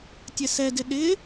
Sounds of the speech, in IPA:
tʲɛsɛdɪ ɗɪ

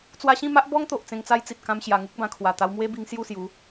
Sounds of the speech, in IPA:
t͡swa˧ɕĩ˥˧ma˦ʔ bɔ˦ŋ t̪o˨ʔt͡sẽ˧ŋt͡sa˦jt͡si˨t̚ kã˧mɕja˨˩ŋu˦k̚ bã˧kʰwa˨˩ t̪a˧wmwe˦bi˧ŋ sju˥˧sju˨˦

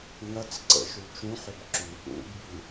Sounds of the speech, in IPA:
ŋɐt͡sǀə̰ ʃut͡ʃũħʏb ǁy ɗṵbɓi

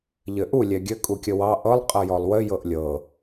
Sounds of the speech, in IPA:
ʎɘʔu lʲɛɡʲɘ kʼukʲəwɑ ʔɤlˠ qʼɤjɔlˠwɘ jɤʔlʲɤ

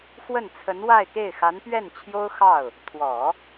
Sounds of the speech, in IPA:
xwə˥˩nt͡sʰə˧˥n wa˥˧ɪ̯ke˥˩ɪ̯xa˧˥n pɥɛ˥˩nt͡ɕʰjo˥ʊ̯xɑ˥˩ʊ̯ | t̪ʰwɔ˨˩˦

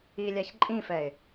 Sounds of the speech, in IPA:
ilʲaç ǃʼĩfɛɪ̯

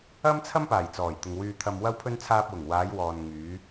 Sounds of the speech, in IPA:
ɐ˥mt͡sʰɐ˥mpaː˨˩j t͡sɔː˨˩jt̪ʊ˨ŋ wyː˧t̪ʰɐ˧mwɐ˥wpʰɵ˥n t͡sʰaː˧p̚wʊ˨˩ŋ waː˨˧jwɔː˨n ŋyː˨˧

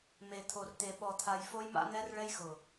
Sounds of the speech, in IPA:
me˨t̪ʰo˨rt̪e˨ ɓɔ˨t̪ʰa˨j fo˦jma̰˦n̪ɛ˦r ɭɛ˦jxʊ˨

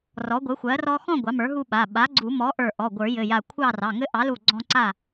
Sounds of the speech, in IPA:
rɔ˩˥ɡʷɘ˩˥xʷɜ˩˥rɔ˦ xɔ̃˥˨ ɡʷɑ˩˥mə˞˩˥ɦu˦ɓa˩˧˩ ɓa˩˥ɡ͡ǀu˨˩˦mɔ˩˥ ʔə˞˧˩ ʔɔ˩˧˩ ɡʷə˞˨˩˦jɘ˩˧˩ja˧˩kʷʰɑ˥˨ rɑ˩˧˩ŋɘ˦ ʔɑ˩˥lu˧˩ ɡ͡ǀɔ̃˦ǀa˥˨

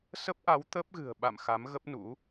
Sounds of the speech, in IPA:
sə˦˥p̚ʔa˨˦w t̪ə˦˥p̚ɣɨ̤˨˩ə̯ɓa̰˧˨m xa˨˦mɣə˦˥p̚nṵ˧˥

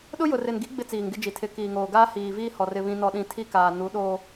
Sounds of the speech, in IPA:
ɗʊ˦jʊ˨rɪ˨nɡi˨˦ ɡ͡bɪ˦t͡siː˨ŋɡɪ˦d͡ʒi˨ tʰɪ˨ kiː˨ŋoː˨ɡaː˦ hiː˨viː˦hɔ˨r ɪ˨βĩ˨nɔ˨ɗĩ˨ tʰi˦kaː˨ nu˨˦ɗoː˦

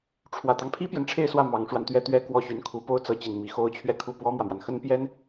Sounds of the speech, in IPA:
ʈ͡ʂʰwä˨˩t̪ɑ˦ŋpʰi˥pjɛ˨n ʈ͡ʂʰe˥˧ɪ̯swä˥˩ mɑ˧˥ŋʂwa˧n t̪ɥɛ˥˩t̪ɥɛ˥ kwɔ˥˩ ɕy˧˥nkʰu˧˥po˥ʊ̯ t͡sɤ˧˥ t͡ɕi˨˩n mi˧˥xo˥ʊ̯ t͡ɕʰɥɛ˥˧kʰu˥˩ pwɔ˥mwä˨mwa˩n xə˥npjɛ˥n

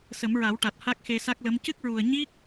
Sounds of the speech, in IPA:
sə˨˩˦mɹa˨˩˦wʈa˨˩t̚ ha˦˥k̚xe˧sa˦˥k̚lə˧˥m cɨ˦˥k̚ɹu˨˩ə̯ ɲi˦˥k̚

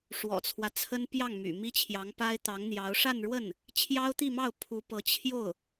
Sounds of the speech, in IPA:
ʂwɔ̰˨˩t͡sʰwä˦t͡sʰə˥n pjɑ˥˩ŋ my̰˨˩ mi˥t͡ɕʰjɑ˧˥ŋpa˥ɪ̯ t̪ɑ˧˥ŋn̪jɑ˧˥ʊ̯ ʂa˥˧nɻwə˥˩n | t͡ɕʰjɑ˥ʊ̯t̪i˥˧mɑ˥˩ʊ̯ pʰu˧˥pɤ˧˥ t͡ɕʰjo˥˩ʊ̯

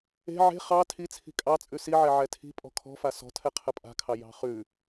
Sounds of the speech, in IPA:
e̤ ʕe̤ χɑ tʰit͡sʰi̤ kʼɑt͡sʼʉ siʕɛ ʕɛtʰi̤ pʼɔ̤kʰɔ̤fa sɔ̤tʰɛ qʰəpʼa̤kʰɑ jɑ̤χʉ

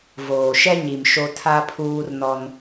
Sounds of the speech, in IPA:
voː˨ʃɛ˦ɲi˨m ʃo˦tʰa˦pʰuː˦rnɔ˦n

